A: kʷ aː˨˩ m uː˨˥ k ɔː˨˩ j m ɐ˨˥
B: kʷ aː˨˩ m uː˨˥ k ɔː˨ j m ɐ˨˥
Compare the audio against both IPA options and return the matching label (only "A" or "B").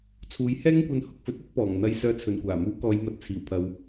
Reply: B